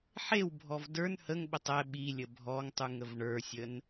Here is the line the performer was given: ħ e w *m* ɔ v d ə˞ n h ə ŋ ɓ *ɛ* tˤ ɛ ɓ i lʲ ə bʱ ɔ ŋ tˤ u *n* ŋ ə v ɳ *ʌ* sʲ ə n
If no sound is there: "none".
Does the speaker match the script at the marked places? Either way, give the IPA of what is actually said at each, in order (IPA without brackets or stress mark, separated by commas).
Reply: bʱ, ə, none, ə˞